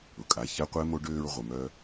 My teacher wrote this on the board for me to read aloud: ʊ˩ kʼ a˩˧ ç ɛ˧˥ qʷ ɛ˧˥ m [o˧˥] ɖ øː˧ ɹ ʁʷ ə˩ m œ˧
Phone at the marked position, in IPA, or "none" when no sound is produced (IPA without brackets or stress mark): o˧˥